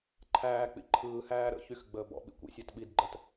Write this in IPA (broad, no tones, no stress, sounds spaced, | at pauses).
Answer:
ǃʰ æː k͡p ḭ ǃʰ ɯː h æː ɾ ə̰ ç y x ɡ͡b əː b ɔ̰ ɓ ḭ kʷ ḭ sʲ æ t ɓ i d ɡ͡ǃ ə t